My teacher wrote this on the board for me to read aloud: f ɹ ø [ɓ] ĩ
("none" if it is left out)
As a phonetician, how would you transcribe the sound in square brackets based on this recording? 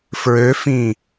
f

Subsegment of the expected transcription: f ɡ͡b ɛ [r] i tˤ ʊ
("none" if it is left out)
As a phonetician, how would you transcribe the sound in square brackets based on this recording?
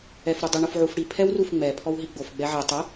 ʕ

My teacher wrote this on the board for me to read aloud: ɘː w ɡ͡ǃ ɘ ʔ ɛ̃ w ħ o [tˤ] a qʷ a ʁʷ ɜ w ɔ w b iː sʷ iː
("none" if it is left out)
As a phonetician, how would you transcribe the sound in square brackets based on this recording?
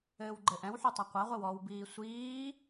tˤ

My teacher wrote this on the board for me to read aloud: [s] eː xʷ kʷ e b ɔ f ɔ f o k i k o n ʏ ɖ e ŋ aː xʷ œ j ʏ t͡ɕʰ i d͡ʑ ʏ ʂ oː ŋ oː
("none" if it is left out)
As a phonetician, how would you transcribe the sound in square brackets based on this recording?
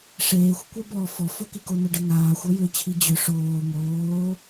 ʂ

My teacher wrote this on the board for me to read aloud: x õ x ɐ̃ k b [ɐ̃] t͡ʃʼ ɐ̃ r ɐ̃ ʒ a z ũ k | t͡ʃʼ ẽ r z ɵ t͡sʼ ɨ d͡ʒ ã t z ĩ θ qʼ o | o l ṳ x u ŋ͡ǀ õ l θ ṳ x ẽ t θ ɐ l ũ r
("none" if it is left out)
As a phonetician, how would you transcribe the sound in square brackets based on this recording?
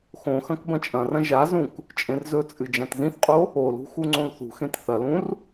ɐ̃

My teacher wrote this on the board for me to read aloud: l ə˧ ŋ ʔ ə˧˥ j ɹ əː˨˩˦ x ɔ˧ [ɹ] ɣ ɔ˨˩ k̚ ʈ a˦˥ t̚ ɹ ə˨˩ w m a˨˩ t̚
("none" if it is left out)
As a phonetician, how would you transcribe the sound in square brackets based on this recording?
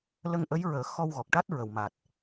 w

